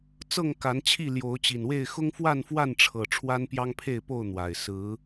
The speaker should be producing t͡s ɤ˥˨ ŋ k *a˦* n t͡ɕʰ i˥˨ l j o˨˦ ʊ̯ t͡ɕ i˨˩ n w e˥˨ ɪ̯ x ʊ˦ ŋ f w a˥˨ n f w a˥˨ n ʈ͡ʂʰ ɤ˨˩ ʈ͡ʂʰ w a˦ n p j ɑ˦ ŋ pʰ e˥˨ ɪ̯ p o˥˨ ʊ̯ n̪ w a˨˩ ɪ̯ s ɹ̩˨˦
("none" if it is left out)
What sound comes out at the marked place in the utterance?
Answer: a˨˦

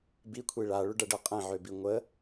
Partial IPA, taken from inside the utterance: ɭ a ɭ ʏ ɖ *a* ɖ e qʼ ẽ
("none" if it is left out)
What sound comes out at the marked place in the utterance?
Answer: ɐ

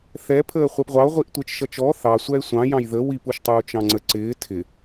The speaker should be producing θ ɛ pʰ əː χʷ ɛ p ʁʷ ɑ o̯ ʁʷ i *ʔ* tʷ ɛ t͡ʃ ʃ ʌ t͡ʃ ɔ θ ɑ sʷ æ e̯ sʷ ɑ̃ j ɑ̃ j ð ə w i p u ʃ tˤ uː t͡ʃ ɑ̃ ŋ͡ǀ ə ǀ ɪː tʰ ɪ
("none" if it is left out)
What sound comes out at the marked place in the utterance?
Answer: ʔ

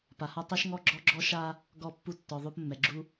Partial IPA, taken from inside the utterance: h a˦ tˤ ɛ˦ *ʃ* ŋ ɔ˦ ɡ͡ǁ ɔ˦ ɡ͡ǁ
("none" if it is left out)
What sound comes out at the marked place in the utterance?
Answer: ʃ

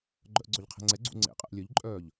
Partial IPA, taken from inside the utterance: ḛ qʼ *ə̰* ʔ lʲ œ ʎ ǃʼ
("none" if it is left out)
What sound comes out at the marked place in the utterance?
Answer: ə̰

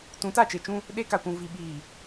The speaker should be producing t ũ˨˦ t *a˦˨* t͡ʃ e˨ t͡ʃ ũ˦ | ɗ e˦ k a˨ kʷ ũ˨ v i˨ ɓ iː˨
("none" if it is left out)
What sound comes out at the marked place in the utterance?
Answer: a˦˨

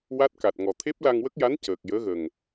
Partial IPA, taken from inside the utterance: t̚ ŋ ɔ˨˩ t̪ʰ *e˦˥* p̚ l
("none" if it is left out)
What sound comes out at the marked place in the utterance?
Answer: e˦˥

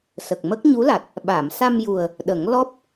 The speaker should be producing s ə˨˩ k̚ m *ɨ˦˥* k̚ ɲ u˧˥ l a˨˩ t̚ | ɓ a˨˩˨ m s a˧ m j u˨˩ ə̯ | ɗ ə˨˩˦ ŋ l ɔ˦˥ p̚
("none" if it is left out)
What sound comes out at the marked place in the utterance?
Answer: ə˦˥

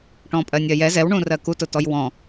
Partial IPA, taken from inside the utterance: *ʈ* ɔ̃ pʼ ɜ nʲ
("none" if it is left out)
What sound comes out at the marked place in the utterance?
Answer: ʈ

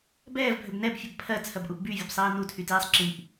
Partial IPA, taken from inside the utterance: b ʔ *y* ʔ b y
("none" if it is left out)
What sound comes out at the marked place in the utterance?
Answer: u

